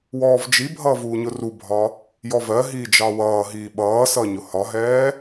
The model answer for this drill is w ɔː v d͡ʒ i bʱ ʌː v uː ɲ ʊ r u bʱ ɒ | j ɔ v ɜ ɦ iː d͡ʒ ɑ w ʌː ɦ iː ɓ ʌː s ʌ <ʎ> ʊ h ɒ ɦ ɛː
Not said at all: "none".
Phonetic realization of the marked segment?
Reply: ɲ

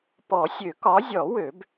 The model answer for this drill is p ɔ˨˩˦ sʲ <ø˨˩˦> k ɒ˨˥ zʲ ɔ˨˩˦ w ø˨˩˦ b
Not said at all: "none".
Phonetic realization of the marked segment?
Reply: ø˨˩˦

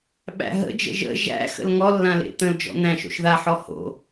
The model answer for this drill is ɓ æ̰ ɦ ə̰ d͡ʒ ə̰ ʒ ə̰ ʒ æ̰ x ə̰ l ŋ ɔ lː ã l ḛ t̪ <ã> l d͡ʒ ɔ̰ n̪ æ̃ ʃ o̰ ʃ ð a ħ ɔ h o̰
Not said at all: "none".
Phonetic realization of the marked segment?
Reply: ə̃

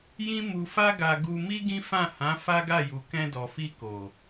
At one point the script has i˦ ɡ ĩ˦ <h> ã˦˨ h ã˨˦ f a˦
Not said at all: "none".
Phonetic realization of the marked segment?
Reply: f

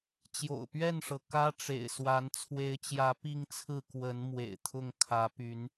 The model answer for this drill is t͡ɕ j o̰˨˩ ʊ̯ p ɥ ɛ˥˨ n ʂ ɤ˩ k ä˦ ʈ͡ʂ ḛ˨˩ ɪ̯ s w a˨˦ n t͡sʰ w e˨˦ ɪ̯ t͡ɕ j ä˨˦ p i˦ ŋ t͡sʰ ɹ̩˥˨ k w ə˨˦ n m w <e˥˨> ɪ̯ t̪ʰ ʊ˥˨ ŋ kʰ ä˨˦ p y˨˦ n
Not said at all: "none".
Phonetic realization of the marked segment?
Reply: ḛ˨˩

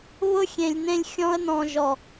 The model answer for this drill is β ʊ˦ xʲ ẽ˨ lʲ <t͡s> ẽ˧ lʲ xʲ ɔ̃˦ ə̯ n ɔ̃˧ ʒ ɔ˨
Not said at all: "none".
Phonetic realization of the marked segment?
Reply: n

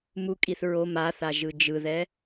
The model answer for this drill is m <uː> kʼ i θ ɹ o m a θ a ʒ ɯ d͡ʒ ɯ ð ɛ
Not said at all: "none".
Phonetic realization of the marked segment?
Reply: u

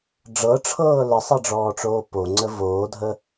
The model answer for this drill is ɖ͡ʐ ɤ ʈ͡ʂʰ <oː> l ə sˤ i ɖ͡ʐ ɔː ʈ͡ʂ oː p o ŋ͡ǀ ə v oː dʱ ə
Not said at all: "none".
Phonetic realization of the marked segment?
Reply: ɤː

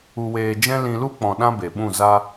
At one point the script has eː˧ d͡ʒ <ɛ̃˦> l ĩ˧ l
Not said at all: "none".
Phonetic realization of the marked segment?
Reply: ɛ̃˦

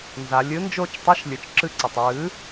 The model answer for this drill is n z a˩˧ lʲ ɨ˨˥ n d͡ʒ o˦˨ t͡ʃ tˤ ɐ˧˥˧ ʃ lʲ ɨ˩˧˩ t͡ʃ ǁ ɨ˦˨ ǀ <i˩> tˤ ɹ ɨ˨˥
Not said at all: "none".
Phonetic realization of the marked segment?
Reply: ɨ˩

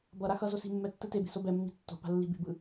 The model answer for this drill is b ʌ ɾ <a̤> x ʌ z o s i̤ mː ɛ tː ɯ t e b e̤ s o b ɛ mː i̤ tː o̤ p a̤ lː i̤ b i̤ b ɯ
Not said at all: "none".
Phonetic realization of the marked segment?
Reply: a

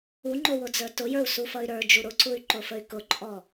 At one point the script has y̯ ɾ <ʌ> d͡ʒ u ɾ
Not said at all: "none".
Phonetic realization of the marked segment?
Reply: ə˞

